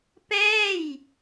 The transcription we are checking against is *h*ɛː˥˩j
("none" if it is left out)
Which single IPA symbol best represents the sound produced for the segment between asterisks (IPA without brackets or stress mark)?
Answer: p